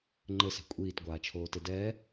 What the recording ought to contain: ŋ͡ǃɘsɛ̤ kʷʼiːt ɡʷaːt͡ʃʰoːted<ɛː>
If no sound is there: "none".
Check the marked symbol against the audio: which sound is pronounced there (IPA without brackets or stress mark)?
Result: ɛː